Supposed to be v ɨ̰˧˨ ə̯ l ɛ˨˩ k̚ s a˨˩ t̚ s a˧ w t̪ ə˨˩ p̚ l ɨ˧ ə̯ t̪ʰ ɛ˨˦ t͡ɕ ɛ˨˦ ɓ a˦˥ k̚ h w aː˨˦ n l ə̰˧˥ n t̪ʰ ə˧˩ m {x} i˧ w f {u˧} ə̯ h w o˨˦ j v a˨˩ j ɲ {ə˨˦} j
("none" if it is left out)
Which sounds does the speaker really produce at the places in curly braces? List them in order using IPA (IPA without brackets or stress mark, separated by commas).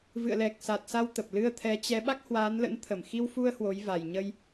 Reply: x, u˧, ə˧